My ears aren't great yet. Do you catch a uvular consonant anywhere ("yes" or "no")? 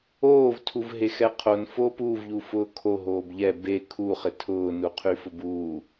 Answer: yes